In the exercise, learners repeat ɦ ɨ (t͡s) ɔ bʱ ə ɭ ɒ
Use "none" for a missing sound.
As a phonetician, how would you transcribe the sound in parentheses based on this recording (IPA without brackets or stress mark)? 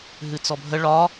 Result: t͡s